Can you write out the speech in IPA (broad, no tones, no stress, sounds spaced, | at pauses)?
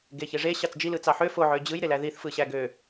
ɡ e ç e ʐ e ɕ ɑ t͡s d͡ʒ i l ɯ t͡s ɑ ħ ø f o ʕ ø d͡ʑ ɯ j ɾ e l æ ð i θ f ɯ ɕ æ ɡ ø